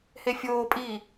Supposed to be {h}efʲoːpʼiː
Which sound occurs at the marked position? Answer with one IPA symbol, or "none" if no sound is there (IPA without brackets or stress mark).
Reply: h